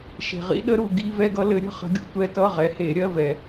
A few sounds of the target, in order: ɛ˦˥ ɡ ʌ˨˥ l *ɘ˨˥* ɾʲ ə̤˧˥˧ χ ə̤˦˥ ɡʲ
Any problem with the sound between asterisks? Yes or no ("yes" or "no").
no